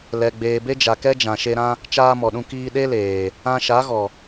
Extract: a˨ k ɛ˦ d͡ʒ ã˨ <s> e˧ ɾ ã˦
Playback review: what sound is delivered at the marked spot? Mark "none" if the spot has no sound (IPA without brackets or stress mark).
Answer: ʃ